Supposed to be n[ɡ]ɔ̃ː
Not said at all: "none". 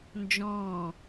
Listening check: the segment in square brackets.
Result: d͡ʒ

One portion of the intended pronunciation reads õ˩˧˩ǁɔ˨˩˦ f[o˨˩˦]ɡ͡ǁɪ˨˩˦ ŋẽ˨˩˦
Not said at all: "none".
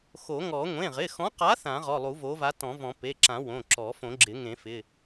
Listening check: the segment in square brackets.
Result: õ˨˩˦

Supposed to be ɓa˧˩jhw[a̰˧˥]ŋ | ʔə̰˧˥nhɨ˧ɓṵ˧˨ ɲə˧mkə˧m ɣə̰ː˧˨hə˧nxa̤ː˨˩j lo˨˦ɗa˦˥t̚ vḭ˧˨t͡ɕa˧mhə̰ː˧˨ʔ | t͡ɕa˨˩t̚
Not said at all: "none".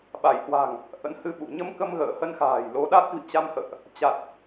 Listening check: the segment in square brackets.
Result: a̤˨˩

